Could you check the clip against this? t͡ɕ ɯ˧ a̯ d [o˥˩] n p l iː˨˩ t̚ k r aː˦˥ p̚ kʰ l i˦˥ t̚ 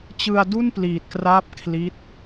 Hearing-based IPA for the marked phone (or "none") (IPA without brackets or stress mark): u˥˩